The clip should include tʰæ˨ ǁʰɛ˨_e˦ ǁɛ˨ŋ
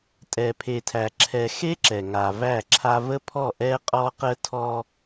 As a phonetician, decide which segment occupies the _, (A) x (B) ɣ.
A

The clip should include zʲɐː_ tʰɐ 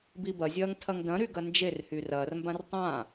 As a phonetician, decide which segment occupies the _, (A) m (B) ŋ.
B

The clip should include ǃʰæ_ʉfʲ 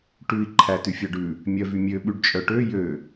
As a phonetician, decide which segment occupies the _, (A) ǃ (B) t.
B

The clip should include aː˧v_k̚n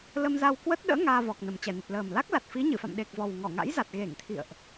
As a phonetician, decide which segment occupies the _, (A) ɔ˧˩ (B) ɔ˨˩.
B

